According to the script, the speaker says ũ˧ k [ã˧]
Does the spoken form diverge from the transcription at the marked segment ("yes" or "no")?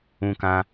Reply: no